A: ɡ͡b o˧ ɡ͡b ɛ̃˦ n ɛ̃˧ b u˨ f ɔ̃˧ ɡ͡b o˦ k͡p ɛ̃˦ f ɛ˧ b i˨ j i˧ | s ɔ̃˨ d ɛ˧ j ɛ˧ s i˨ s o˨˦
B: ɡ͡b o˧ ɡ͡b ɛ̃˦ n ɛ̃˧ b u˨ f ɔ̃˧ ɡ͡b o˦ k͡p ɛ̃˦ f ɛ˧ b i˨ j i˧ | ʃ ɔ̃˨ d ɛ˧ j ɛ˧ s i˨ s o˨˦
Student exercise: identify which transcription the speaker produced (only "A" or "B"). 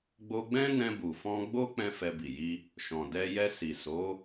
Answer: B